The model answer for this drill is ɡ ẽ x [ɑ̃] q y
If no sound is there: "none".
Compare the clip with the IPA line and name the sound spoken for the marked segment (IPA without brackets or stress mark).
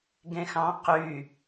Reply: ɑ̃